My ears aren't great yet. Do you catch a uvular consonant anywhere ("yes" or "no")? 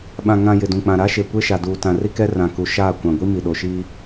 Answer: no